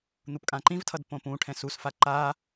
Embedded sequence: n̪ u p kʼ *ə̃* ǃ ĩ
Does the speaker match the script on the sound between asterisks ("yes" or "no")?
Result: no